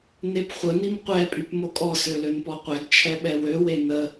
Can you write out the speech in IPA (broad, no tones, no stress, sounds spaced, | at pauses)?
n e p χʷ ə n i m qʷ ɛ pʼ y p m o kʼ ɔ s ø l ø n p ɔ qʷ ɛ ɡ t͡ʃʰ ɛ ɓ ɛ w ø w e n ə